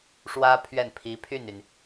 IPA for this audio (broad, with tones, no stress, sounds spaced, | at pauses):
ʂ w ä˥ pʰ ɥ ɛ˥˩ n pʰ i˧˥ pʰ y˥˩ n y˩ n